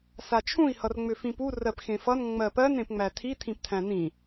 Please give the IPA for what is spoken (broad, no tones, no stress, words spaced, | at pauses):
sat͡ʃʰũi̯ hʌrŋ͡mʏfĩpu rɜpxẽfʌn ŋ͡mɜpɜn ẽpŋ͡mætʰi tʰĩptʰæ̃nĩ